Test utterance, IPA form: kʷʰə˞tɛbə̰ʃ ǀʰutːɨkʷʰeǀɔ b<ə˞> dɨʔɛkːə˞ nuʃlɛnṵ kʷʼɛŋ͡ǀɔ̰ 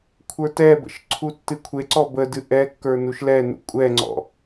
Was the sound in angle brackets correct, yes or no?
no